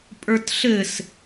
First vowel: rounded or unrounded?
unrounded